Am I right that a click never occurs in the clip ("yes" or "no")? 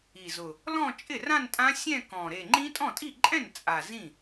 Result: no